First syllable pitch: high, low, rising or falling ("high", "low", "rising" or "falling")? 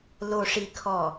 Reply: low